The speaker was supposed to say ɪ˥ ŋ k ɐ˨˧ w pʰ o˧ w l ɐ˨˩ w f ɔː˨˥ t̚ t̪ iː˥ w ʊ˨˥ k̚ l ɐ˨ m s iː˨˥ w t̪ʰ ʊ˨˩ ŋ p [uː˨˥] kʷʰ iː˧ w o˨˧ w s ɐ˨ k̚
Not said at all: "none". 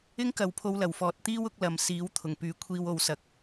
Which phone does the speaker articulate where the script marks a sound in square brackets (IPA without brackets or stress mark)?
yː˨˥